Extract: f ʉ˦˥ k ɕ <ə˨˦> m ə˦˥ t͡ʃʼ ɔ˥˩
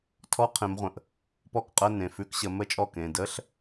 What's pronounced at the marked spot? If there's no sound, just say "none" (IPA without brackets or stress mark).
ə˨˦